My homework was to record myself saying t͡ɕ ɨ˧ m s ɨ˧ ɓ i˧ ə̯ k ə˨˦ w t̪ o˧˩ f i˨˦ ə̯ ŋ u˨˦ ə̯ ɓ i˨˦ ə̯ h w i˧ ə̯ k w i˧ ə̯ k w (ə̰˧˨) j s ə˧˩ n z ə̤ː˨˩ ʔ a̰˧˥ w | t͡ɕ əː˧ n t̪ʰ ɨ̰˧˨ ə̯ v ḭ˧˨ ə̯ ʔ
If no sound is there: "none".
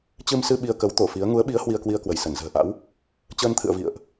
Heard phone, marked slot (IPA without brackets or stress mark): ə˧˩